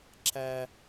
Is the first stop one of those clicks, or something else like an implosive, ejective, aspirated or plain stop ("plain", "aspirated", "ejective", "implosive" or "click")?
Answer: click